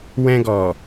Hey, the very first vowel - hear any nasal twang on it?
yes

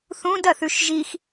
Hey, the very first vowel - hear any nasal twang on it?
yes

